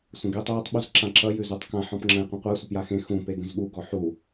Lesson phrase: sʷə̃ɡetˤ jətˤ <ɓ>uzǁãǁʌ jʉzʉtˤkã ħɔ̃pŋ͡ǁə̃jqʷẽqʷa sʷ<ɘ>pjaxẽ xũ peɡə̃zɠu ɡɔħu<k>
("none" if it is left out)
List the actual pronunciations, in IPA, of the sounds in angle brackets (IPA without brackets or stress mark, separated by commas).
ɓ, ɘ, none